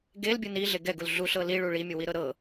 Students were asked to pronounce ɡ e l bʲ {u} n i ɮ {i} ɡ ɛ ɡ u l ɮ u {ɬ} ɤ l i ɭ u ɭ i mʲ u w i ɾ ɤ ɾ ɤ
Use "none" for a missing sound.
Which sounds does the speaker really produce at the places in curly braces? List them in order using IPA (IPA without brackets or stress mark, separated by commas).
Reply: ɯ, e, ɬ